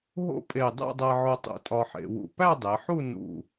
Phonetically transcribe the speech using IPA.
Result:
ɦ o̰˥˧ pʼ e˧˩ dˤ æ̰˥˧ dˤ æ˧ ʕ o˧ tˤ ṵ˧˩ tʼ ɒ˧ ħ ḛ˩˧ w ṵ˧˩ p æ˥˧ dˤ e˩˧ ħ u˥˧ n ṵ˧˩

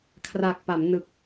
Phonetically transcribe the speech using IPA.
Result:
kʰ r a˨˩ k̚ p a˩˦ m n ɯ˨˩ k̚

